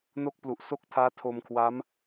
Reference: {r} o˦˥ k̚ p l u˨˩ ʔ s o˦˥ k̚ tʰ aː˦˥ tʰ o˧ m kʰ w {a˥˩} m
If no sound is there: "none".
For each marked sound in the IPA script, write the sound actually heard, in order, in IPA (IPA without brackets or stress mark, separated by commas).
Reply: n, a˦˥